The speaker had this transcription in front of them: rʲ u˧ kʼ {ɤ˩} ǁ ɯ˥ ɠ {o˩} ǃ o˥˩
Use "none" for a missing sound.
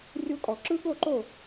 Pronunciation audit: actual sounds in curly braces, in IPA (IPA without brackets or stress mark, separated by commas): ɔ˩, o˥˩